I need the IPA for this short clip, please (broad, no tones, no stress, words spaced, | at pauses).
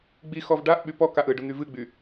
ɡ͡bi xɔvɖaʔɓy pɔkaʔ ɯɖʊ n̪yvɨɡ͡by